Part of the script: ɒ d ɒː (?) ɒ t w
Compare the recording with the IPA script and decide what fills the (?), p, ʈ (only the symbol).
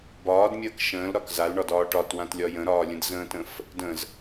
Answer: ʈ